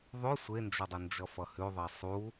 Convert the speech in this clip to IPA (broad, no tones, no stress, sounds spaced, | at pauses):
ðˤ ʉ sʷ e n d͡ʒ ʌ dˤ ə n d͡ʒ ʌ f ʌ h ʉ ðˤ e sˤ u